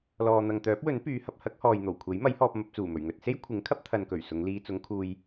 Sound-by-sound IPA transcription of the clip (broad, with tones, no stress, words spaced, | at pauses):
lɔː˨n̪ɐ˨ŋt̪œː˨˥p̚wɵ˨˥n pyː˨˧hɐ˧p̚ hɐ˥k̚hɔː˨jn̪o˨˩w kʷʰe˨˥jmɐ˨˥jhɔː˧p̚ mɐ˧p̚t͡suː˨˩mɵ˨˩ɥ ŋɵ˧t̚ se˥j kʷʰɪ˨˥ŋkʰɐ˥p̚ t̪ʰɐ˨nkɵ˨˩ɥ sʊ˨˧ŋliː˧ t͡sʊ˨˧ŋkʰuː˨j